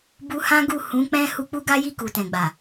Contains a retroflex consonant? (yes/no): no